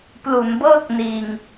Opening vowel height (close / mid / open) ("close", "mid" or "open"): close